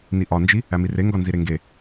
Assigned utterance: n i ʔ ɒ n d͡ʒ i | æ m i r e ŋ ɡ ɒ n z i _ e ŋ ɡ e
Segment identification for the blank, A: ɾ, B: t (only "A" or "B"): A